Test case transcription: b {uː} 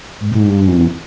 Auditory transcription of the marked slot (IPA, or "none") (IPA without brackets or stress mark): uː